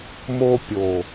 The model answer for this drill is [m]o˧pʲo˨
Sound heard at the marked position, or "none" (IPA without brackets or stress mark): m